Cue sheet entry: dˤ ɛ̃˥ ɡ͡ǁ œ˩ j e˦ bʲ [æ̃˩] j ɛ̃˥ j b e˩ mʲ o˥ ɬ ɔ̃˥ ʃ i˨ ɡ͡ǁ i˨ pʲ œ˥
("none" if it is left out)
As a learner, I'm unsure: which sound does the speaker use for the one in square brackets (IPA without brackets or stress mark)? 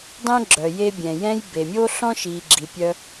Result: ɛ̃˩